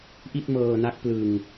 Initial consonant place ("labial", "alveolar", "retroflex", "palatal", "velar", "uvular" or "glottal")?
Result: glottal